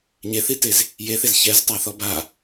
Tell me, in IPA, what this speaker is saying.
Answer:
ɲeθitez | jeθez çɛztˤaθɔ ba

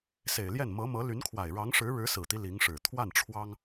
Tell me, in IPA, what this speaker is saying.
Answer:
se˨˩ɪ̯ljɛ˥˩n mɤ˧˥mɤ˧˥ly˧˥nkʰwa˨˩ɪ̯ ɻɑ˧˥ŋʂɻ̩˧˥ ɻɻ̩˧˥sɹ̩˨˩t̪i˦ li˧˥ŋʂɻ̩˨˩ t̪ʰwa˥˩nʈ͡ʂʰwɑ˥ŋ

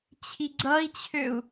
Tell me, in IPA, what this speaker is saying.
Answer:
t͡ɕʰiɡ͡ǀʌi̯t͡ɕʰøu̯

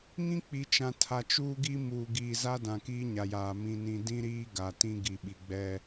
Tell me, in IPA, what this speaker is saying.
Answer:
ŋĩ˦k͡pi˨t͡ʃã˨ tʰa˨t͡ʃuː˦ɡi˦ muː˨ɡiː˨za˦dã˨ kiː˦ɲa˨jaː˨ mĩ˨nĩ˨ dĩ˦ɾiː˦ ɡa˨ tĩ˦ ɡi˨ɓi˨ɡ͡bɛ˦

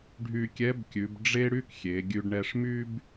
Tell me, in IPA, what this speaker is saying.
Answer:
ɖʱy˧kʲɛ˧˥bkʲʉ˩˧b ɖ͡ʐe˥ɽy˥kxʲe˩˧ ɡʲʉ˧ɖɳɛ˧ʂmy˥b

